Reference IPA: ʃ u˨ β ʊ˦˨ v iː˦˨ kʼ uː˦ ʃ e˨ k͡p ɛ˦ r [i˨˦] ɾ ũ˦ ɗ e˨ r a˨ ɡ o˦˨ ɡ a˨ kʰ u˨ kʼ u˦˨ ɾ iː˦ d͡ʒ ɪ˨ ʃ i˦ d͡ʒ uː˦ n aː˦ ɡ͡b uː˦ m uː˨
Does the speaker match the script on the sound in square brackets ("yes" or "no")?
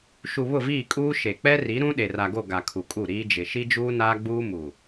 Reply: yes